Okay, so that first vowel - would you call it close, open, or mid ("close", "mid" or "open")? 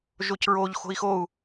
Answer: mid